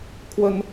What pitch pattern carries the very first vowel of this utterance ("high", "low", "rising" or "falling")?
high